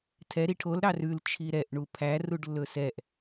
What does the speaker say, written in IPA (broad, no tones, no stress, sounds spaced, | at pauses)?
tʰ ɛ ɾ i ʈʰ o l ɾ ɑ r ʉ l t͡ʃʰ i ɾ ɛ ʔ ɳ u pʰ æ r u ɖ lː ɵ s ɛ ʔ